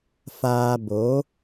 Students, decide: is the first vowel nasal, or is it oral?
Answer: oral